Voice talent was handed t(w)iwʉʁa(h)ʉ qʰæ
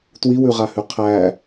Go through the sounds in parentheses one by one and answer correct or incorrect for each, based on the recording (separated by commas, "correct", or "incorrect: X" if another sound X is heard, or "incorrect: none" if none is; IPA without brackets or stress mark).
correct, correct